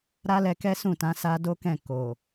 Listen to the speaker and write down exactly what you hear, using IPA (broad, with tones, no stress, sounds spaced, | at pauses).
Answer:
ɾ a˦ l ɛ˧ k ɛ˦ s ũ˦˨ t ã˨˦ s a˦ d o˦ k ɛ̃˦˨ k o˨